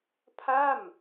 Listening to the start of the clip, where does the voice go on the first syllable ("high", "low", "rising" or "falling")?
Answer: falling